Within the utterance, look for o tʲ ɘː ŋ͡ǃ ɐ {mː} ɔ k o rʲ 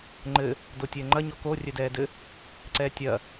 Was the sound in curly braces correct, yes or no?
no